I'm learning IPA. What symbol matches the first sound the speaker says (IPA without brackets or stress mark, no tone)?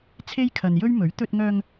t͡sʰ